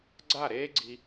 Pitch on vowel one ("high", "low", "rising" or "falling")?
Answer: falling